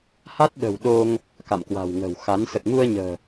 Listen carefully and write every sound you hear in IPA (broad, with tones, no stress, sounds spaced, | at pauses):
h a˦˥ t̚ ɗ ə̤˨˩ w ɗ o˧ ŋ | k a̰˧˨ m k w a̤˨˩ w ŋ ə̤˨˩ w x a˨˦ n s ə˨˩ t̚ ŋ u˧ ə̯ ɲ ə̤ː˨˩